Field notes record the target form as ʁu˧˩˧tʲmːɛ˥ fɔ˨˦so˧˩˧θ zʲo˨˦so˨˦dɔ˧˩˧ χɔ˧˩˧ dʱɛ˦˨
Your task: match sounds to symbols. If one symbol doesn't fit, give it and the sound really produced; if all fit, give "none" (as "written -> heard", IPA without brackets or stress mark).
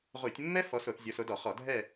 none